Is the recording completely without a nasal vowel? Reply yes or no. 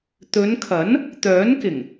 yes